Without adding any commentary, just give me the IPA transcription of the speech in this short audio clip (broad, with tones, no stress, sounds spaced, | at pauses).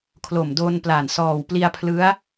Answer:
kʰ l o˨˩ m d o˧ n p l a˨˩ n s ɔː˨˩ w p l i˧ a̯ pʰ l ɯ˦˥ a̯